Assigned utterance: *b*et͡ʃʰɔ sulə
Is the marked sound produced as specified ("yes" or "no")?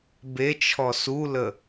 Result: yes